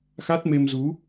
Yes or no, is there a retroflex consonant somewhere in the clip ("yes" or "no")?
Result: no